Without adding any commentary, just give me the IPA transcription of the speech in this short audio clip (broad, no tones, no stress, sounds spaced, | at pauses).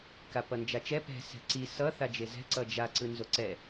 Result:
k a p ʌ n d͡ʒ a t͡ʃ ɛ p ɛ̤ s ɛ̤ ǀ i s ʌ θ a d͡ʒ e z ɛ̤ ǀ ʌ d͡ʒ a ǀ ɯ n z o ǀ ɛ